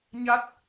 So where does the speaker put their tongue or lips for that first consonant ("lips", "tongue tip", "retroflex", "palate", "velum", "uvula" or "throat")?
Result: palate